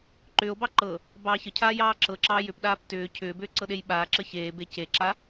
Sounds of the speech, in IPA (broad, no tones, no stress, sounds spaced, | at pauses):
ǃ ʏː o̯ b ɑ ǃ ɤ | b ɑː ç ə cʰ aː j ɑː ǁ ɤ ǁ ɑː j ʏ p ɗ aː p t ʏː cʰ ʏː b ʏː ǀ ɤ ɗ e j ɓ aː ǁ ə ç eː b e c e ǁ a